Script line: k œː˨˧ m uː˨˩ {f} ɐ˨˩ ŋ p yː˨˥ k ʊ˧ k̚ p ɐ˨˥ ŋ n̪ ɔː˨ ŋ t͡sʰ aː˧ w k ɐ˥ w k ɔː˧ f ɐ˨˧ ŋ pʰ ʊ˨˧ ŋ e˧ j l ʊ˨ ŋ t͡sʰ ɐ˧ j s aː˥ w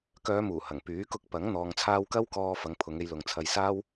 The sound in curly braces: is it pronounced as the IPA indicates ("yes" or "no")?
no